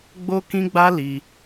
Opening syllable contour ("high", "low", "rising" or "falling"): high